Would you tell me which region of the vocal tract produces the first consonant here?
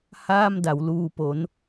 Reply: throat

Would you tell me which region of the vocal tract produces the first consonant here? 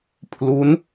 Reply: lips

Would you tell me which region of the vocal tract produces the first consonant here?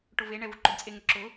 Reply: retroflex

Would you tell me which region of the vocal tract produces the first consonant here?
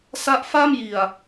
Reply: tongue tip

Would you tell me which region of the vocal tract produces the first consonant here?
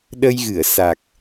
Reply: tongue tip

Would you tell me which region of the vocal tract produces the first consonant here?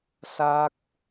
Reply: tongue tip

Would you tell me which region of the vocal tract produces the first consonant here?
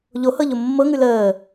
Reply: palate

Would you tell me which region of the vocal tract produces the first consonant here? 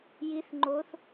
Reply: palate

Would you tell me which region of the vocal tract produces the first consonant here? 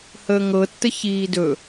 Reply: throat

